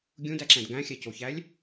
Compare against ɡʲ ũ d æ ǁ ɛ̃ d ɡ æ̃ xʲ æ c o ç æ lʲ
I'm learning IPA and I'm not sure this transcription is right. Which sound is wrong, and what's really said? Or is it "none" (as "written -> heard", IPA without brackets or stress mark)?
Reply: none